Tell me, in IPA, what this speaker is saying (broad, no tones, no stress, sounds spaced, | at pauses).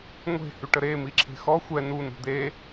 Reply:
ŋʷ e̤ h y ʈ ə ɾ e m i ǁʰ e̤ x ɔ xʷ ɛ n u n ṳ d̪ e